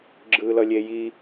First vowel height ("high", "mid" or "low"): high